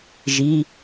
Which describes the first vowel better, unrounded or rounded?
unrounded